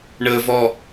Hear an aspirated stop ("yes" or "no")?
no